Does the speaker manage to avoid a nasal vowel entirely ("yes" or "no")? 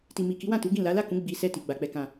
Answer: no